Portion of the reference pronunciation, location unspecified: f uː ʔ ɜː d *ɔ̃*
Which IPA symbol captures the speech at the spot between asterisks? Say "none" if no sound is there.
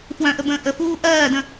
ə̃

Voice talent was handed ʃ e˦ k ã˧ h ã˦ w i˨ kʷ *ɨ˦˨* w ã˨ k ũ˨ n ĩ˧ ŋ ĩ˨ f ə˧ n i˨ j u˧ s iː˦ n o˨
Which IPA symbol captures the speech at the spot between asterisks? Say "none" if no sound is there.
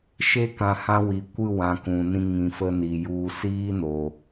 ɨ˦˨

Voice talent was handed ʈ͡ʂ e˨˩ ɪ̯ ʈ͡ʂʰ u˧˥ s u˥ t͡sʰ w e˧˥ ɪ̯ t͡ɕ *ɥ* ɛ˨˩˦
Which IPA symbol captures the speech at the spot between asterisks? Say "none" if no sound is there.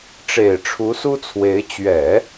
ɥ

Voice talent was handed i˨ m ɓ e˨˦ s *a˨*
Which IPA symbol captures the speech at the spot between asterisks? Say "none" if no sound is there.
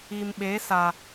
a˨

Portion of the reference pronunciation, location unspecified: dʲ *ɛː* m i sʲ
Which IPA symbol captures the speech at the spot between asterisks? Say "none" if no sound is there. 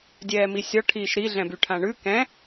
ɛː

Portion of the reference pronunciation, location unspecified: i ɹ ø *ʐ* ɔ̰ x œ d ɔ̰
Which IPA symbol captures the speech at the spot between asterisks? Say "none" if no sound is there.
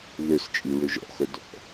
ʒ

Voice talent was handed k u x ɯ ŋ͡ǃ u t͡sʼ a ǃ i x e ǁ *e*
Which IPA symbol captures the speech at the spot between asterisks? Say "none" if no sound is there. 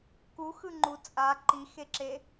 e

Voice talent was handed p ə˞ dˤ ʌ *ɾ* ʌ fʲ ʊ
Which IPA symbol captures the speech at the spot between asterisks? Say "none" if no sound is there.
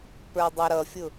ɾ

